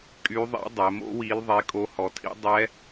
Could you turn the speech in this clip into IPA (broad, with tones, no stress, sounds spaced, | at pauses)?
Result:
kʼ y˧˥ ðˤ ḭ˧˥ dˤ ɛ˩˧ m o̰˧˥ w i˧˥ l ðˤ e˧˥ kʼ o˧˥ h ɔ˩˧ tʰ ḭ˧˥ dˤ ɛ˧˥